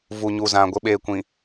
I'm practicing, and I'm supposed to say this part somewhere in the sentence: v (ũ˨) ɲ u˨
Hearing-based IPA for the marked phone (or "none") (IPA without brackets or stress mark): u˨